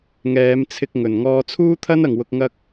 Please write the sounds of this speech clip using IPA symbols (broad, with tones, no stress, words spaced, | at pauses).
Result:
ŋɛː˨˧mt͡sʰɪ˧k̚ŋɵ˨˩n ŋɔː˧ t͡sʰuː˥t̪ʰɐ˥nɐ˨˩ŋwʊ˨k̚ ŋɐ˥k̚